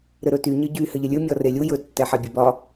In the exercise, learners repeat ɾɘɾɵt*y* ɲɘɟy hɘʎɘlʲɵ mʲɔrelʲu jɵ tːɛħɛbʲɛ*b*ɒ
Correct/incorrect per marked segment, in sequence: correct, correct

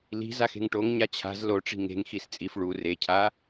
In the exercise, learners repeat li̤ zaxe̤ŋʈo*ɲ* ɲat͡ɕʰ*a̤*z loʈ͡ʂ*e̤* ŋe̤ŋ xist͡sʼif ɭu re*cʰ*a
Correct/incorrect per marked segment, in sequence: incorrect, correct, incorrect, correct

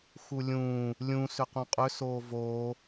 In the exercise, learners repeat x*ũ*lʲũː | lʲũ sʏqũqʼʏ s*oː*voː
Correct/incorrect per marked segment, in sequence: incorrect, correct

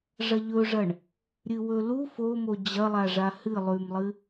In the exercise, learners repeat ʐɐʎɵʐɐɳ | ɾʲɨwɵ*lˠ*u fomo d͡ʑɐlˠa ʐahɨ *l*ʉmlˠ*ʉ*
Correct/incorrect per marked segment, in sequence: incorrect, incorrect, incorrect

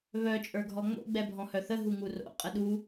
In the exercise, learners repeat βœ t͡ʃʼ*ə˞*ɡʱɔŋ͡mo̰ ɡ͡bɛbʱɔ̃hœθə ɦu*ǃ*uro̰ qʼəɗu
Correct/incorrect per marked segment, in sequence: correct, incorrect

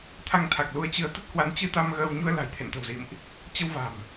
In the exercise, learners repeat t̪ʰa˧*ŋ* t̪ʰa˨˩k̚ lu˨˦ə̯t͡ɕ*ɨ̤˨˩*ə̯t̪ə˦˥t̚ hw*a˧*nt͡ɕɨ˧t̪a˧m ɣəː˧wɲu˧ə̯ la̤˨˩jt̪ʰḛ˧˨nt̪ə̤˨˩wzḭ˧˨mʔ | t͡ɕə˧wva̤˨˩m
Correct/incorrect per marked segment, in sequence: correct, incorrect, incorrect

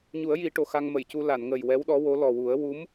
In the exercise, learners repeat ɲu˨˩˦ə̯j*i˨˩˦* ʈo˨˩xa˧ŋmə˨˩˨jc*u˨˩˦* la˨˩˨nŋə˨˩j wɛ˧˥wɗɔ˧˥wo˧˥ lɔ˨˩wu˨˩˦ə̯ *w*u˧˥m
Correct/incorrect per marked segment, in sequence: correct, incorrect, correct

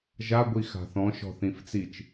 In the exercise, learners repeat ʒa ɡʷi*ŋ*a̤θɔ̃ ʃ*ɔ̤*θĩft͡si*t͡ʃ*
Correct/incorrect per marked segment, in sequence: incorrect, correct, correct

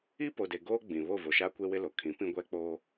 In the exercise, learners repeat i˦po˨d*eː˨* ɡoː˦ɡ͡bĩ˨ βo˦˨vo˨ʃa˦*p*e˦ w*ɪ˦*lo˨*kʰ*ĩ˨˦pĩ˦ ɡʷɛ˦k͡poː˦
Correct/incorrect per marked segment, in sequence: incorrect, incorrect, correct, correct

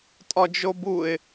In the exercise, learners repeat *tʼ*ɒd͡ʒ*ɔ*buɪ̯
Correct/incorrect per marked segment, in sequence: correct, incorrect

